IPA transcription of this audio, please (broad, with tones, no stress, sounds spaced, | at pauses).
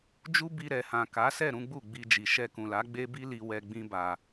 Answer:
d͡ʒ u˦ b i˧ ɾ ɛ˨ h ã˨ k a˨˦ s ɛ˦˨ ɾ ũ˨˦ ɡ͡b u˦˨ ɡ͡b i˧ d͡ʒ i˨ ʃ ɛ˧ k ũ˨ l a˨˦ ɡ͡b e˦ b i˦ l i˧ w ɛ˧ ɡ͡b ĩ˦ b a˧